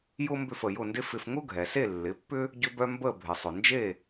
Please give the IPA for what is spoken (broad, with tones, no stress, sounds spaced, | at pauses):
j ʊ˥ m b ʏ˥˩ f ə˩ j ʊ˥˩ n d ɪ˥ f ɪ˧ f ŋ ʊ˥ ɡʱ ɛ˩ s e˥˩ lː ɪ˩˥ pː ʏ˥ | ɟ ʏ˧ b œ˧ m b ə˥˩ bʱ ɪ˩ sˤ ʊ˩ n d͡ʒ e˥˩